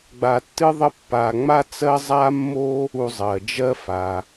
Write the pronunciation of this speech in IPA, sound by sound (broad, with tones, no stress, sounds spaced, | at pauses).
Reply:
ɡ͡b a˧ tː ɨ˥ ðˤ ə˥ pː a˧ ŋ͡m a˥ t͡s ɜ˥ zˤ a˥ mː o˥ | u˧ zˤ ɜ˩ d͡ʒ ɜ˥ f a˩